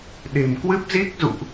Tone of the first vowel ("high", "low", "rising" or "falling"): low